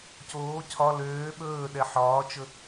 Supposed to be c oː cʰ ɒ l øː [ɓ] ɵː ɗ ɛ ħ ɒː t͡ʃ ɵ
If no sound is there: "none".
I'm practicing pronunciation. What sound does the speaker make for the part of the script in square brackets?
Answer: ɓ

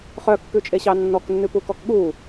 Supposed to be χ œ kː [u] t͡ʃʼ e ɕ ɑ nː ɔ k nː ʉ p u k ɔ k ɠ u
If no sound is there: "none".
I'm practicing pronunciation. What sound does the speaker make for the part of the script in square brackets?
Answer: ʉ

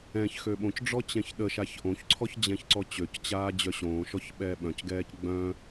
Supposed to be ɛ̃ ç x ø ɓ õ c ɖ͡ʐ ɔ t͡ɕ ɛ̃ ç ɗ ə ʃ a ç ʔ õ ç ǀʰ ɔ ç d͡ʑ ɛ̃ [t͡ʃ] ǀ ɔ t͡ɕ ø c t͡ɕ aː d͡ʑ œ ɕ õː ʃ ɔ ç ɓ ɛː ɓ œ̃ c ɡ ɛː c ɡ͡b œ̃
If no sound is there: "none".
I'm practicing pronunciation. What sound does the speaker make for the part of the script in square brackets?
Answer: ç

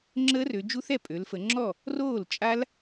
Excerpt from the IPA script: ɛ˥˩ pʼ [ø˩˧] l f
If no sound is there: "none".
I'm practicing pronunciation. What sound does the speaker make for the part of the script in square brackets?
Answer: ø˩˧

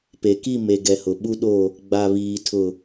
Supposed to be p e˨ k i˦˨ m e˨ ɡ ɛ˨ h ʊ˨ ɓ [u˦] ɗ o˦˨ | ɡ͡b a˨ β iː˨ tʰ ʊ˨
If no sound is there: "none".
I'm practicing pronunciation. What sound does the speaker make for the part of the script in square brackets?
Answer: u˦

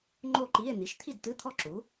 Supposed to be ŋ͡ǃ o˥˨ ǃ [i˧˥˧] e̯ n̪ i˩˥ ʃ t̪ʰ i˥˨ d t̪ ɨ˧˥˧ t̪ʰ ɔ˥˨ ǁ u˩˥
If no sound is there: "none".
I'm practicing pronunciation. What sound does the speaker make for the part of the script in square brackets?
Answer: i˧˥˧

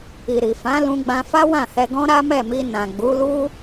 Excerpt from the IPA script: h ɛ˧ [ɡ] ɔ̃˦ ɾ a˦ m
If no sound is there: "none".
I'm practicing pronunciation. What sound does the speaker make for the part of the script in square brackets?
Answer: ɡ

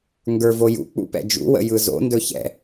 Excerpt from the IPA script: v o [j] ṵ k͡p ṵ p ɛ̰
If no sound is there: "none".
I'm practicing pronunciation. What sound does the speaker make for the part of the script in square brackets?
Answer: j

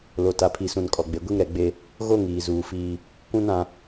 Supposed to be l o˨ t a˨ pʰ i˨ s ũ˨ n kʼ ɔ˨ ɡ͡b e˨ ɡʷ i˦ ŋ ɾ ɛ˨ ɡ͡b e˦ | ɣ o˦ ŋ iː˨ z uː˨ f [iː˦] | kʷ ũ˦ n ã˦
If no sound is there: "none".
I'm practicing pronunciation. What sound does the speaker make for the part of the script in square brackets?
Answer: iː˦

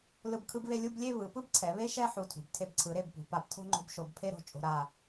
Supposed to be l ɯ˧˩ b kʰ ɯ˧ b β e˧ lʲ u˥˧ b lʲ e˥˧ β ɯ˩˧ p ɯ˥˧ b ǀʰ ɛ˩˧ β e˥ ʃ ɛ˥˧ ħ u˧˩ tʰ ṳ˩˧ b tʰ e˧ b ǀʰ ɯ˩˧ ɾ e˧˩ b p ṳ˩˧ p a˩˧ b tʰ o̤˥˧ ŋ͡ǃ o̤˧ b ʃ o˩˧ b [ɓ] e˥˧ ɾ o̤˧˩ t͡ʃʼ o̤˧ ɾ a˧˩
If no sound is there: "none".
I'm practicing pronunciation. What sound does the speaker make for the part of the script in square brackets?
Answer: pʰ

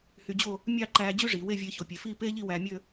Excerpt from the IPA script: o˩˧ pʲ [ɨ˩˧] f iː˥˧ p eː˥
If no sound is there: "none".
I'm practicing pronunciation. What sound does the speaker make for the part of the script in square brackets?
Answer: e˩˧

